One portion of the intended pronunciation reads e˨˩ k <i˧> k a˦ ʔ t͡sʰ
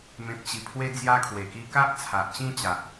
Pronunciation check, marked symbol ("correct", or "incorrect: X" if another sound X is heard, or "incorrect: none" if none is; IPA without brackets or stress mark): correct